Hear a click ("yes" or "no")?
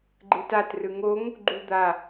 yes